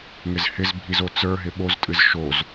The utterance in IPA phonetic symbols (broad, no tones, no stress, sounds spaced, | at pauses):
ŋ ɪ z h ɪ z bʱ i z o t͡s ə˞ ɦ ɪ ɓ o z tʼ ɨ z ʃ o z